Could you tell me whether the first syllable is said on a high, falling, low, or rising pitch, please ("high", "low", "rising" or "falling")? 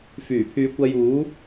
low